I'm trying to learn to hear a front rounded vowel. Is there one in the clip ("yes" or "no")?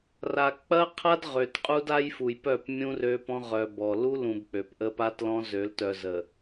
yes